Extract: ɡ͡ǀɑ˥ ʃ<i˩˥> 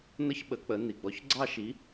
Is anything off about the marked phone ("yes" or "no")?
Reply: no